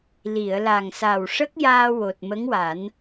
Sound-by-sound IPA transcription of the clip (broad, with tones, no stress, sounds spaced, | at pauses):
l i˨˩˨ ə̯ l a˨˩ ŋ s a˨˩ w ʂ ə˦˥ k̚ j aː˧ w o˨˩ t̚ m ə˧˥ ŋ w a˨˩˦ n